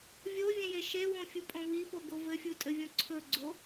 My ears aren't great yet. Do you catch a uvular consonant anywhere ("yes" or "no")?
no